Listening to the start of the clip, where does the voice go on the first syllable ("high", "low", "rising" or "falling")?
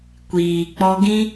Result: low